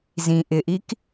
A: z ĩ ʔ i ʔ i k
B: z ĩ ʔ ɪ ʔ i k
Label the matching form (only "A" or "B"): B